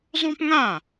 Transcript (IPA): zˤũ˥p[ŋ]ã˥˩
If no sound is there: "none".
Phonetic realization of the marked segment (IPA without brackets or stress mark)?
ŋ